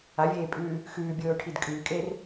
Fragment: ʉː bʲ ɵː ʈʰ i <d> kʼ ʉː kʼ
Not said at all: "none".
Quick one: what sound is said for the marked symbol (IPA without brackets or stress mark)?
d